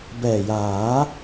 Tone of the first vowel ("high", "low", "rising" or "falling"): low